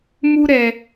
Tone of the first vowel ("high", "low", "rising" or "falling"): high